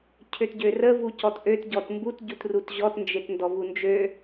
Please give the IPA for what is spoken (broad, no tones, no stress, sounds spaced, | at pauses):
cʰ ø t ɟ ø r ə v u c ɔ t ʔ ø t ɟ ɔ t m b u t ɟ u t r u t ʑ ɔ t n d͡ʒ e t n d ɔ v u n d͡ʒ ø